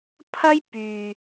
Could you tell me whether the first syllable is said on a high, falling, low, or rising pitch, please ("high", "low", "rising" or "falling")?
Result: high